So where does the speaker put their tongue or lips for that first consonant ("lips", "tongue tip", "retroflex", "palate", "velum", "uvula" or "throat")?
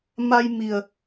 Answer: lips